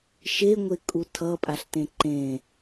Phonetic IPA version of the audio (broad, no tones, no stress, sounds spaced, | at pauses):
ʃ e ŋʷ e kʼ u tʰ ʌ pʼ a ɬ t ẽ ǃ ẽ